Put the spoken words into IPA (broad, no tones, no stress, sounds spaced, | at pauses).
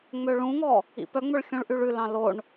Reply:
ŋ͡m ø ɭ ũ ŋ ɔ | ḭ p œ ŋ͡m ɵ ɭ xʲ ũ ɭ ʔ y ɭ ʉ l ɑ̃ l o ɳ